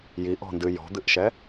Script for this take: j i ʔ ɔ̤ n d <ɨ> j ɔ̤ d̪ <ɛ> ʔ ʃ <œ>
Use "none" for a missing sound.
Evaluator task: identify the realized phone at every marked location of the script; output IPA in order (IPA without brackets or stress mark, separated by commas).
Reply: ɨ, ɨ, ɛ